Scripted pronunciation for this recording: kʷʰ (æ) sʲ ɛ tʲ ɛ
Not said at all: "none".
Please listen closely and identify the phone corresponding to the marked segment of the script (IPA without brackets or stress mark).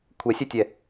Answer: ɛ